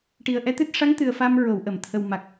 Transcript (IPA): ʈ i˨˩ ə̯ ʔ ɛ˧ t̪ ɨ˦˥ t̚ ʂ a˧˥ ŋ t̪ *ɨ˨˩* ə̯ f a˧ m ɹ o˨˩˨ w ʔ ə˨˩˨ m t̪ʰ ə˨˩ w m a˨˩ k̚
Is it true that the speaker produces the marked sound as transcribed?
yes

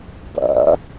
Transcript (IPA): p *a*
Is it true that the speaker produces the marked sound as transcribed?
no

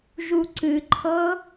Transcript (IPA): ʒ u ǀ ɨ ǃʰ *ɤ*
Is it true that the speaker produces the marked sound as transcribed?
yes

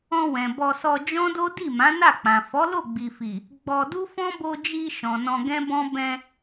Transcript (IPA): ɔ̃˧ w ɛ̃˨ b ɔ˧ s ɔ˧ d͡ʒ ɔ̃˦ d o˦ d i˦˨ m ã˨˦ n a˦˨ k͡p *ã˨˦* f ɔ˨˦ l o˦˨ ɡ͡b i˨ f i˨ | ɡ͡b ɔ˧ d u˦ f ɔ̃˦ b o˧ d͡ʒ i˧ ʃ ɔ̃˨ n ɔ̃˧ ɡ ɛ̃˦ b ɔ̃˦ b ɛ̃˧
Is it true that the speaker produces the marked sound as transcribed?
no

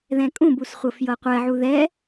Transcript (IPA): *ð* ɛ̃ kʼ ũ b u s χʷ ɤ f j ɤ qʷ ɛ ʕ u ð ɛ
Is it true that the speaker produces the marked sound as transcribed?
yes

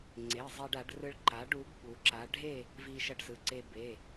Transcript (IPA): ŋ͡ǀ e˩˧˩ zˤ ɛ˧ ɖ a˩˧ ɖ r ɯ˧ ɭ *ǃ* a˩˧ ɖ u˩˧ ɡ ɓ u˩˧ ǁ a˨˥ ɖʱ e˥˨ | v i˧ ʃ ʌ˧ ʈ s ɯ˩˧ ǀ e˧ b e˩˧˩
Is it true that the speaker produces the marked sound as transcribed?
yes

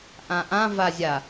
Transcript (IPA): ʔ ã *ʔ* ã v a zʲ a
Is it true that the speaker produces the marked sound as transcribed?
yes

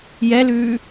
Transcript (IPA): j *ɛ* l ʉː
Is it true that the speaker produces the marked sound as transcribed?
yes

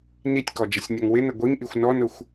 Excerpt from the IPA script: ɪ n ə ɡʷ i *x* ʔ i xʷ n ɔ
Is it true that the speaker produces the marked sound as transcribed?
no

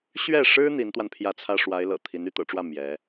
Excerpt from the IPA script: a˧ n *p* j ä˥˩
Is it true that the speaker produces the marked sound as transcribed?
no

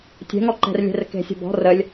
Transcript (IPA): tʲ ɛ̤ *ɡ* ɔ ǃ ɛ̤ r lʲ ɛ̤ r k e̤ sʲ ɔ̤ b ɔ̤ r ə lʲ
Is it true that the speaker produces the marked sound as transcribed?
no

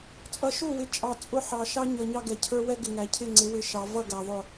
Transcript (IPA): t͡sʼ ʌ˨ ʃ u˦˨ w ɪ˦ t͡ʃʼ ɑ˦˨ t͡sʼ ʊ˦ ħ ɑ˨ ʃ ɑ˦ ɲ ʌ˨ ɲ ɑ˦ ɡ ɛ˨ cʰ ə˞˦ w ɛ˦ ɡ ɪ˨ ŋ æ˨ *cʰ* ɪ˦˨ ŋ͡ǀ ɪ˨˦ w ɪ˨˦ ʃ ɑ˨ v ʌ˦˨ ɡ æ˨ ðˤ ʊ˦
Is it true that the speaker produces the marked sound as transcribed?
yes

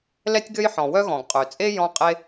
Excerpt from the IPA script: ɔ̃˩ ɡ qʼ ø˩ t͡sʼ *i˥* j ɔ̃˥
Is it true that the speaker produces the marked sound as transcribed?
no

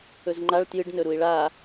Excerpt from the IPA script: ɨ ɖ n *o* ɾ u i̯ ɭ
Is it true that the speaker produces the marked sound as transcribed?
no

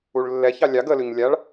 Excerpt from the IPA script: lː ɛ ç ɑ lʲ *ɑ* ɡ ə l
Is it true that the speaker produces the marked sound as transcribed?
yes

